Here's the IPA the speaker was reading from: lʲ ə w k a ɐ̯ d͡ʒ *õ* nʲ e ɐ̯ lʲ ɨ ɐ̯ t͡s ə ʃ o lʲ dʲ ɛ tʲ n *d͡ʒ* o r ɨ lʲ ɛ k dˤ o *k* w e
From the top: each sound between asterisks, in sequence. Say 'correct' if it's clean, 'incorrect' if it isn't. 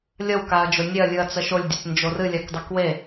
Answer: incorrect, correct, correct

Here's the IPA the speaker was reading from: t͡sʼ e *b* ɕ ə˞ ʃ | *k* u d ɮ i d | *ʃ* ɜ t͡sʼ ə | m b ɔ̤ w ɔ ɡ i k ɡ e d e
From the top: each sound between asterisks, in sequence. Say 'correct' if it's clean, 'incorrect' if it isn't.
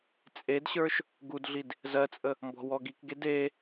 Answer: incorrect, incorrect, incorrect

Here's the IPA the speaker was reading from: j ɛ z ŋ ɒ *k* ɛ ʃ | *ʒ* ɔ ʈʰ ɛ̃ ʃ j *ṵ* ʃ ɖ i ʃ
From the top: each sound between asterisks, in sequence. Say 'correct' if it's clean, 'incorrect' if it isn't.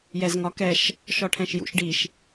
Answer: correct, incorrect, correct

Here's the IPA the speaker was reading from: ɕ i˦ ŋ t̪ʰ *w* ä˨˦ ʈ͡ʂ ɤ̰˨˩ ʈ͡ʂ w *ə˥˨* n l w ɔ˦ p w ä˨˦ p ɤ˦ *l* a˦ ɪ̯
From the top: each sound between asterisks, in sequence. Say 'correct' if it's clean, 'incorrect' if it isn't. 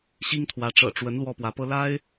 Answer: correct, incorrect, correct

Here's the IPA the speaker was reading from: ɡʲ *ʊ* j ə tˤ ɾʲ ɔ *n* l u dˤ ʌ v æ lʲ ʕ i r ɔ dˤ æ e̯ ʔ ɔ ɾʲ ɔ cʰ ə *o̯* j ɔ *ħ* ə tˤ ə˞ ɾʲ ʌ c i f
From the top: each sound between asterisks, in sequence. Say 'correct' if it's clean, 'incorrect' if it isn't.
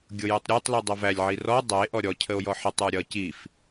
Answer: correct, incorrect, correct, correct

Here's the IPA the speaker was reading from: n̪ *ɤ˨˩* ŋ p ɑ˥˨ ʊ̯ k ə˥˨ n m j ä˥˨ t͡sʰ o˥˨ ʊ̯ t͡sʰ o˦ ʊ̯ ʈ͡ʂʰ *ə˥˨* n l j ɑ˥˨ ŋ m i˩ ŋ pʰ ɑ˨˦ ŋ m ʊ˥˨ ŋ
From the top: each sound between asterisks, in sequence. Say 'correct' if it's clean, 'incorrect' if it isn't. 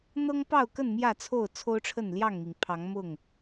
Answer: incorrect, correct

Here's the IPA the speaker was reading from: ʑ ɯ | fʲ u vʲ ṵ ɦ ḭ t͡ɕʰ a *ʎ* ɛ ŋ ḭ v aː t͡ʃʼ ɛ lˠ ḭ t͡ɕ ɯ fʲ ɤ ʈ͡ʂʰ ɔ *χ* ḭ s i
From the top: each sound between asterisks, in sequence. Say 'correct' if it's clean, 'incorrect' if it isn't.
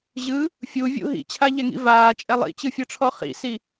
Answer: correct, correct

